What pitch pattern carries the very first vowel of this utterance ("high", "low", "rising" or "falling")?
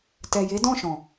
low